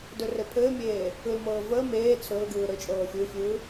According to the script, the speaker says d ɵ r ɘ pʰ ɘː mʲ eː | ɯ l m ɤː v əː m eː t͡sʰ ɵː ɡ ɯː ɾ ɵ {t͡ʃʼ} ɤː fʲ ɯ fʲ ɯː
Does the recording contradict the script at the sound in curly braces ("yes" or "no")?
no